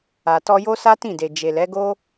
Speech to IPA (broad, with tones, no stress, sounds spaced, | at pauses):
a˨ t ɔ˧ j o˦ s a˦ t ĩ˦˨ d e˨ d͡ʒ e˨ l ɛ˨˦ ɡ o˦